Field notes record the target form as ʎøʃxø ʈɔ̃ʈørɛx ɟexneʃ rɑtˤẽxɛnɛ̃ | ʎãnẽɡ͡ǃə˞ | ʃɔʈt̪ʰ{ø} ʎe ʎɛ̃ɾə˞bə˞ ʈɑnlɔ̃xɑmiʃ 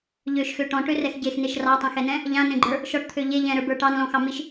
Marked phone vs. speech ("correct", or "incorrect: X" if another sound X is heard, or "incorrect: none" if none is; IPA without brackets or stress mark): correct